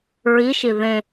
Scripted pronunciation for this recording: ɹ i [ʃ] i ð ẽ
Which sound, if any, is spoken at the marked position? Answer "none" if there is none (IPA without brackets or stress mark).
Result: ʃ